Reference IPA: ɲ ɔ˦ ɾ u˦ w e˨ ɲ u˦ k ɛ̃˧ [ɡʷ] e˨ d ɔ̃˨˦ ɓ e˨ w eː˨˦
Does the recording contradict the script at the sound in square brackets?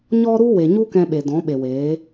yes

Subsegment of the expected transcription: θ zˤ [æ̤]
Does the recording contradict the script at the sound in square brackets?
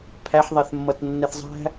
no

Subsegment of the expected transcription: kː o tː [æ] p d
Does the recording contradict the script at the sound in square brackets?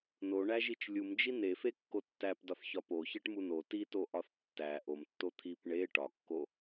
no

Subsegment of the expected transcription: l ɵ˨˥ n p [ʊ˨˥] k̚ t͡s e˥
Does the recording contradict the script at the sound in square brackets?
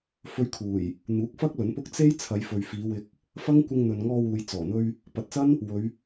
yes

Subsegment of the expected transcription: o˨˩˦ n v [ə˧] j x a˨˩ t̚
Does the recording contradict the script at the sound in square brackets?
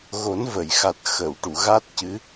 yes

